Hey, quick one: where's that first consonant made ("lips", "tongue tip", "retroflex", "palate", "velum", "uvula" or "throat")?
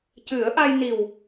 palate